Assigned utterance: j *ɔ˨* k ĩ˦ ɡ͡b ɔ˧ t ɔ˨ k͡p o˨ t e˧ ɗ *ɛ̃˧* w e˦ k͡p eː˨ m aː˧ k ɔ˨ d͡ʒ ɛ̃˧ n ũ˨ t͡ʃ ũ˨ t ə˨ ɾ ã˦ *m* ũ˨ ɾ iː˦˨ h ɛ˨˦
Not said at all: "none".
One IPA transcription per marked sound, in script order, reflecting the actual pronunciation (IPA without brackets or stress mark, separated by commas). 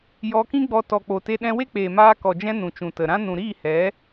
ɔ˧, ɛ̃˧, n